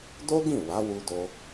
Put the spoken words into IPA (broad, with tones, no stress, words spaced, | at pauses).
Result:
do˦ɡĩ˦˨ wa˨˦wu˧do˧